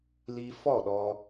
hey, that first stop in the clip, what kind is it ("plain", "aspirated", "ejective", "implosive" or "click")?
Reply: implosive